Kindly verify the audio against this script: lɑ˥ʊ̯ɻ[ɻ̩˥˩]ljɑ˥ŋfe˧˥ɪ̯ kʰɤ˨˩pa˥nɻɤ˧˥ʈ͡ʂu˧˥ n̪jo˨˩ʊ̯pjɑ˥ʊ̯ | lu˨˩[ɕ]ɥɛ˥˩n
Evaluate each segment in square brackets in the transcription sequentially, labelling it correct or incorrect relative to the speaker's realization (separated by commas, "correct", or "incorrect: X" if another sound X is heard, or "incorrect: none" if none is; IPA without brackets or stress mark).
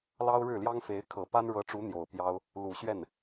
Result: correct, correct